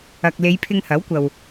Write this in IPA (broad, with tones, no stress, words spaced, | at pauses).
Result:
ɐ˨k̚le˨˧j pʰɪ˧ŋhɐ˨˥wkʷɐ˨w